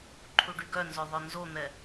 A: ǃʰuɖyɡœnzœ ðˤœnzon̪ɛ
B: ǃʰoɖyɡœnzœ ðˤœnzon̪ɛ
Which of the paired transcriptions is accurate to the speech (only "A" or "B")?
A